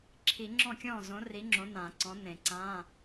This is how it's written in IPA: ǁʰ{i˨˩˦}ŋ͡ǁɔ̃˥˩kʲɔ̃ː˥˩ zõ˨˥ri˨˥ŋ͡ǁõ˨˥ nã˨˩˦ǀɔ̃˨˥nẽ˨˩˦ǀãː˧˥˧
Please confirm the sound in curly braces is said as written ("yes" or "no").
yes